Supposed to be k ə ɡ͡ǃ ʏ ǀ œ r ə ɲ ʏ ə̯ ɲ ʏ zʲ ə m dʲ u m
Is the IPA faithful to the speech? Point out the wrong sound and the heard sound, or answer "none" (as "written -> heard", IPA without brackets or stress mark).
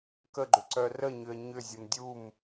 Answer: none